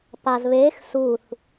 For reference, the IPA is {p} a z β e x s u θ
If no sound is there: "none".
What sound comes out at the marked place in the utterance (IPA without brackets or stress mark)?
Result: p